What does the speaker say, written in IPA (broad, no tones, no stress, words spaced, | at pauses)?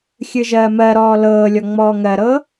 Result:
xʲɨʒɜːmɜɾɔː lɤːlʲɔ ŋ͡mɔːŋɜɾɤː